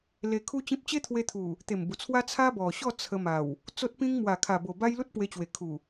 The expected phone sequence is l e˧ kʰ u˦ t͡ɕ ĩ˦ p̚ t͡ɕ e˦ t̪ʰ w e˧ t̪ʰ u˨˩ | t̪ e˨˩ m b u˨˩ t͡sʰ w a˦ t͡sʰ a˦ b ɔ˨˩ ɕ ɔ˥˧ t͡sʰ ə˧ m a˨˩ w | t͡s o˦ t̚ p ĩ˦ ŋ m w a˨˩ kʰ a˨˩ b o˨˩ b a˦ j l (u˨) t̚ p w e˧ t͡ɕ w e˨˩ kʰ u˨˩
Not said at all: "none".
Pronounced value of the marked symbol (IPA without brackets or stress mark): u˦